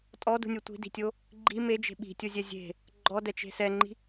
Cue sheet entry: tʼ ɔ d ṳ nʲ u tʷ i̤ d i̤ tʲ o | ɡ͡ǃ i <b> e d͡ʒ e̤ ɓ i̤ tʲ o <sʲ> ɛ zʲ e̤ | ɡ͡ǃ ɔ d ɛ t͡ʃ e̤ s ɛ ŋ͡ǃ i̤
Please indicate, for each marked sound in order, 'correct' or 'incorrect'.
incorrect, incorrect

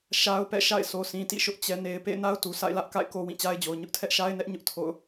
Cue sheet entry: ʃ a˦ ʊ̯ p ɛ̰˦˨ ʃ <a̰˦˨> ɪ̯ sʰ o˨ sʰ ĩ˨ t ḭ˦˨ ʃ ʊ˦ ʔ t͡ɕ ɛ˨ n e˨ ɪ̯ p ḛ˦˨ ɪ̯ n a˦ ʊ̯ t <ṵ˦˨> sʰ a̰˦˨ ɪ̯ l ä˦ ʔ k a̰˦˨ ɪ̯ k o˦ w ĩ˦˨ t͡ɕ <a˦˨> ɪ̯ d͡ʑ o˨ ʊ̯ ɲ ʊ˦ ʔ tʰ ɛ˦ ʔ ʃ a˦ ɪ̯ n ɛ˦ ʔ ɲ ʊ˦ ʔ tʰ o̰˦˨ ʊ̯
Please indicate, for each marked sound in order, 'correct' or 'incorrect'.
correct, incorrect, incorrect

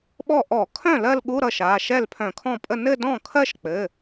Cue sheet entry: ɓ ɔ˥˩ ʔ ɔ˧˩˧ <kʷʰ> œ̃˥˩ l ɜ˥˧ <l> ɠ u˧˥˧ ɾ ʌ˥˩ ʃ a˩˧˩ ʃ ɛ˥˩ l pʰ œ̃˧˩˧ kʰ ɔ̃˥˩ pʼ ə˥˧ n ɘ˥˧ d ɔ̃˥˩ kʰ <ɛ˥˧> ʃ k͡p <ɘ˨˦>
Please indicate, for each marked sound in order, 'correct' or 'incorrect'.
incorrect, correct, incorrect, incorrect

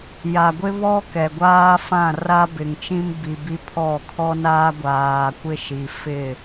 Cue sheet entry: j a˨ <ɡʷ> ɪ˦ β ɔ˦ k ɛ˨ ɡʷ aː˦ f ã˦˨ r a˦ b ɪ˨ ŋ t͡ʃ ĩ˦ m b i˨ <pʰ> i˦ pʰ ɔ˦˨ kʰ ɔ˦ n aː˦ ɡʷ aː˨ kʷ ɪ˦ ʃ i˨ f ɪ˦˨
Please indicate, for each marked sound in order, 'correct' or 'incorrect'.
correct, incorrect

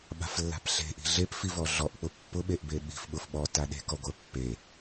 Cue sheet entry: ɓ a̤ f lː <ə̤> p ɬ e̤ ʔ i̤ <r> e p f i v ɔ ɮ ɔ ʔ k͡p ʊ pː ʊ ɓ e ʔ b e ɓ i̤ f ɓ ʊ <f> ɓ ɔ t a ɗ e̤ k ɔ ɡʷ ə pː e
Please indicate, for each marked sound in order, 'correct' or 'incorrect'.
incorrect, incorrect, correct

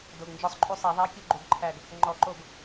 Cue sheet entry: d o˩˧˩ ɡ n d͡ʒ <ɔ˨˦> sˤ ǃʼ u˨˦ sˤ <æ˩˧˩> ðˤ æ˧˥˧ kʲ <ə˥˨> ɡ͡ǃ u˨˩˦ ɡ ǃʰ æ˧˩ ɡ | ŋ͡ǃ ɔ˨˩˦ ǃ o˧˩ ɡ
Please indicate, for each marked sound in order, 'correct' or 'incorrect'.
correct, incorrect, incorrect

